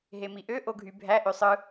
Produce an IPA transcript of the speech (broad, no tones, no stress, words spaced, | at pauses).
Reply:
ɦemiʔø ʔoɡʱy bʱæ ʔøsˤɯ